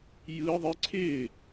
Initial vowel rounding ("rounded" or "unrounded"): unrounded